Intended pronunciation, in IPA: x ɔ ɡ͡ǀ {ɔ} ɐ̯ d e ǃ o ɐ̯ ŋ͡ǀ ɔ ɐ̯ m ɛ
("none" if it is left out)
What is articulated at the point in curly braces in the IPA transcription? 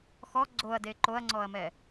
o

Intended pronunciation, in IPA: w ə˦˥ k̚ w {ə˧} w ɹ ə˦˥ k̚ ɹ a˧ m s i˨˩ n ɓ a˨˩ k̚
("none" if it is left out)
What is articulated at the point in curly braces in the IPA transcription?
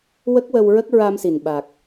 ə˧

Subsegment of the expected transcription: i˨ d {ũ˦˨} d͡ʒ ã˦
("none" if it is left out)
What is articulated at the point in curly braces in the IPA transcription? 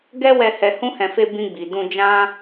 ũ˧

